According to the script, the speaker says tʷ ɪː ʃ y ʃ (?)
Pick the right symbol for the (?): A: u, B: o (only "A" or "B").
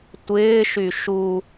A